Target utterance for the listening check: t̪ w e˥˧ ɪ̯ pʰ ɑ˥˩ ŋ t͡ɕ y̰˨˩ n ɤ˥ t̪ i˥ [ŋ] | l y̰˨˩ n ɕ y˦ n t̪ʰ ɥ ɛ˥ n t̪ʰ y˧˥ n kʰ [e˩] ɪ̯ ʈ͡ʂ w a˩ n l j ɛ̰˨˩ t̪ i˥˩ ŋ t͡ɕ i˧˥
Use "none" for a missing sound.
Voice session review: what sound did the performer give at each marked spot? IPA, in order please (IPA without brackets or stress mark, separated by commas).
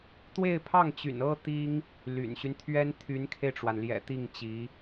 ŋ, e˧